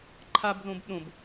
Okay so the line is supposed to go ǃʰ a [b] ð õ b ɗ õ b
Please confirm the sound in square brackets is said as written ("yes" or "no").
yes